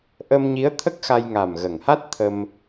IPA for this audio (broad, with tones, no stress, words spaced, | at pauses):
ʔə˧mɲi˧˥ə̯t̪ʰə˦˥k̚ xa˧jŋa˨˩m ɣə˨˩ŋha˦˥t̚ t̪ʰə˧m